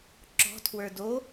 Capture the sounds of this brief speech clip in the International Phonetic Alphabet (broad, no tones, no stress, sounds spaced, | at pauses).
ǁ ɔ̤ tʰ w ə˞ d o